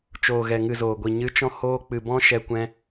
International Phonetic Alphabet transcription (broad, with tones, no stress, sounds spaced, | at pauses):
t͡ʃ oː˨ ɣ ɛ˨ ŋ ɨ˨ z oː˨ ɡʷ i˨ ɲ ɨ˨˦ t͡ʃ ɔ̃˧ h oː˧ k͡p ɨ˨ b ɔ̃˧ ʃ ɛ˧ kʷ ɛ̃˧